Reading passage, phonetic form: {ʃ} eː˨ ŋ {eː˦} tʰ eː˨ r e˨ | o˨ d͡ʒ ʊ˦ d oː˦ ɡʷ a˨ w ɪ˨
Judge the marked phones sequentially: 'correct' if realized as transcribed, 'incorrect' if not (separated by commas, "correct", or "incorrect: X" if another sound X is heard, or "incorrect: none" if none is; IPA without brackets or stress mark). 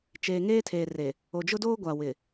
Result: incorrect: t͡ʃ, correct